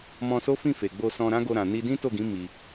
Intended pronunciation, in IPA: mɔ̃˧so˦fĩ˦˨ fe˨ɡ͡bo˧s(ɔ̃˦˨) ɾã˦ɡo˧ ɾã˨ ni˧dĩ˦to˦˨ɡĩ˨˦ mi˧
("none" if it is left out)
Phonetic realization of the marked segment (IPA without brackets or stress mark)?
ɔ̃˧